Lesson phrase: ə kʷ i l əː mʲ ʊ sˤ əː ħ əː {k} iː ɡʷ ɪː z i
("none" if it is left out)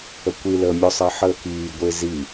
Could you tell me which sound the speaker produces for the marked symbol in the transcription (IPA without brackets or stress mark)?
k